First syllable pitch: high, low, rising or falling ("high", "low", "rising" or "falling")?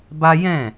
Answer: high